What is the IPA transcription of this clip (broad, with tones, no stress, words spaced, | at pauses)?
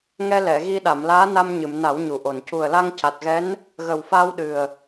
ŋɛ˧lɛ˨˩˨ɣi˧ ɗa˨˩˨mlaː˧˥na˧mɲɨ˨˩˨m na˨˩˦wɲu˨˩ʔo˨˩n cu˨˩ə̯la˧ŋca˨˩t̚ɣɛ˧˥n | ɣə˨˩wfaː˧w ɗɨ˨˩ə̯